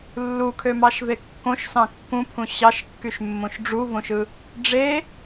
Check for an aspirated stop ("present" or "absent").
present